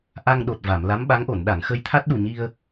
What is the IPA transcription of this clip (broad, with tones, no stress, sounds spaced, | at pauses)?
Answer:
ʔ a˧ ŋ ɗ o˨˩ t̚ v a˨˩˨ m l a˧˥ m ɓ a˧˥ ŋ ʔ o˨˩˨ n ɗ a˨˩˨ ŋ x ə˧ j t̪ʰ a˦˥ t̚ ɗ u˨˩ ɲ i˧ ə̯